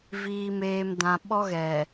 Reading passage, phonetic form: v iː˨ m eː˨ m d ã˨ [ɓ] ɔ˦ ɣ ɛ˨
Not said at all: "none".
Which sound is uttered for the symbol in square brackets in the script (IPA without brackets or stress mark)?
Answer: ɓ